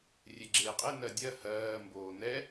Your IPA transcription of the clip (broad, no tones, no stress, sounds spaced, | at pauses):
rʲ e ɡ͡ǁ eː qʼ e n ɜ dʲ ɜ h ɜː m b oː n ɛ